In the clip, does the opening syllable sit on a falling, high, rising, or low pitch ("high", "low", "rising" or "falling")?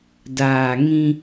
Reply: low